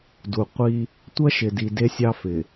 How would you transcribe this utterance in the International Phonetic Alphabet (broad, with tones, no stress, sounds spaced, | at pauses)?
d u˨ qʷ i˦ | tʷ ɐ˦ ʃ ɪ˨ d i˨ d e˦ sʲ ɑ˦ f ɪ˨